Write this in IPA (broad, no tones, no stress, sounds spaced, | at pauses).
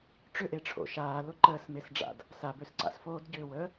ʈ͡ʂ ʏ ʔ e ʈ͡ʂʰ o̰ ʃ aː l ʊ ǃ əː s m e s ɖ͡ʐ a̰ d | s a b ø s ǀ a̰ s f oː d ɟ ʏː w əː